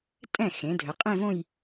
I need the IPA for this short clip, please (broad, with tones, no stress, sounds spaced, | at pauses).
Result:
tʼ ɛ̃˥˩ x ẽ˩˥ dʱ ə˩˥ qʼ ẽ˥˧ v õ˥˧ j